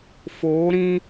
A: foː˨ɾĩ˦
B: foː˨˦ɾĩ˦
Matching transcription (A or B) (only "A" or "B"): B